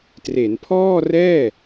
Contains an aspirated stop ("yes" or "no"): yes